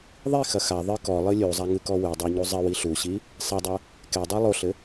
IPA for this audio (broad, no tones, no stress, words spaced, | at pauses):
ðˤixɐ xa ðˤɨ kɔlˠɨ lʲuzˤaŋɨkɔ wɨdˤɛɲu zˤɘwi ɬuɕi | sˤɐdˤɐ | kɛdˤa lˠoɬɘ